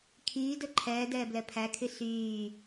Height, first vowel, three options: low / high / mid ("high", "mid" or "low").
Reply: high